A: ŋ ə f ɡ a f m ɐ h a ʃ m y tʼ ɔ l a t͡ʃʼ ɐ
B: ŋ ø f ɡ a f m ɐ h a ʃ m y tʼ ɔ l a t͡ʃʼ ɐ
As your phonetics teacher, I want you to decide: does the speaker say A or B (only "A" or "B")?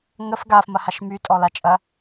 A